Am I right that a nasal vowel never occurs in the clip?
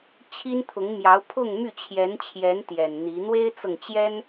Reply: yes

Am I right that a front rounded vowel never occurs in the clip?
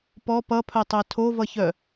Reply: no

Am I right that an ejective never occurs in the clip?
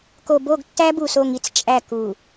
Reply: no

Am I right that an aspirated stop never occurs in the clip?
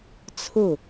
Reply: no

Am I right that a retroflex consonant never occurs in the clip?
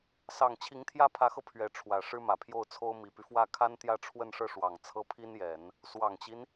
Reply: no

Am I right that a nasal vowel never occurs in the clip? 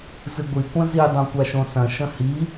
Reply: no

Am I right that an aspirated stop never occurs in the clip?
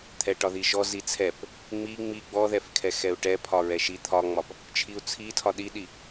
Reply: no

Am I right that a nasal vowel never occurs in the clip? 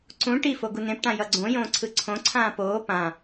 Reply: no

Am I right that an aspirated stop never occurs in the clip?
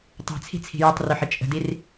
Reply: no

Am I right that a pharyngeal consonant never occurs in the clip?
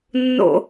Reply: yes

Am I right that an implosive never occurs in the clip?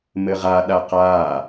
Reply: no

